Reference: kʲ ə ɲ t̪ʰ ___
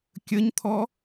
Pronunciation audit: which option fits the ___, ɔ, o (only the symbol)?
ɔ